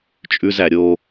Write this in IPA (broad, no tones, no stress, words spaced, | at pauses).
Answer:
t͡ʃʼʉzæ ɾʲo